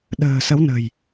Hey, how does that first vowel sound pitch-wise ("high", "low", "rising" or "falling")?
low